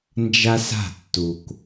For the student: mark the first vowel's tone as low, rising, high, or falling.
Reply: high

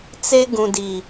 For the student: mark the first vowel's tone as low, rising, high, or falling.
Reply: high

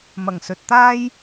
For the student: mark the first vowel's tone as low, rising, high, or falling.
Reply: low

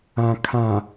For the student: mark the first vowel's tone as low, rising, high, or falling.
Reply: low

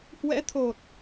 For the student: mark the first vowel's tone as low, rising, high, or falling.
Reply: rising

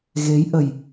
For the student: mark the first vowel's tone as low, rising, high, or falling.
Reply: rising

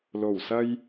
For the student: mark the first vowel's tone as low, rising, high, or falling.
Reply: low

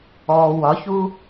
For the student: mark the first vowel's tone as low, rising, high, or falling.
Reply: low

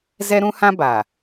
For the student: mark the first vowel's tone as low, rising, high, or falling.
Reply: high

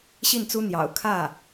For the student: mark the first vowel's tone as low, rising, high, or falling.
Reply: falling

